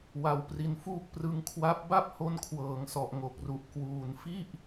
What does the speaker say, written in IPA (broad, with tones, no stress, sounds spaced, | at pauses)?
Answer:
w a˧ w p r i˧ n f uː˥˩ k̚ p r ɯ˧ ŋ kʰ w a˦˥ p̚ b a˥˩ p̚ h o˧ n kʰ w ɤː˩˦ ŋ s ɔ˨˩ ʔ ŋ o˨˩ k̚ r u˨˩ ʔ k w uː˩˦ n f i˥˩ ʔ